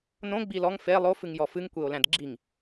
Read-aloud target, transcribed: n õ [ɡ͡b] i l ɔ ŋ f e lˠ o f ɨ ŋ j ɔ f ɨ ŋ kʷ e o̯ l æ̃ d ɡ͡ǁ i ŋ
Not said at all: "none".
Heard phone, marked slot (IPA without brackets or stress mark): ɡ͡b